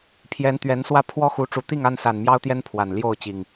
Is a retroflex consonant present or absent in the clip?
present